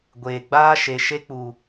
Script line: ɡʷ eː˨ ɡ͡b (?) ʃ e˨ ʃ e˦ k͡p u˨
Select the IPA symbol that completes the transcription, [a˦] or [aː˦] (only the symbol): aː˦